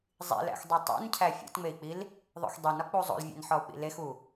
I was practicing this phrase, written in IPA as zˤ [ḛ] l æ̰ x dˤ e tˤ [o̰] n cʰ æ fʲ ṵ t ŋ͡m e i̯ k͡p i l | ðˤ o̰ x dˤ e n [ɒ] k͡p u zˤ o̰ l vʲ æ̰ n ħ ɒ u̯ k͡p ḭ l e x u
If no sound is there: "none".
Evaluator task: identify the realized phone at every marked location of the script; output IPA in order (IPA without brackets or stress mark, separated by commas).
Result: ḭ, ṵ, ɒ